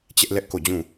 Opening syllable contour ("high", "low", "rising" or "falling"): high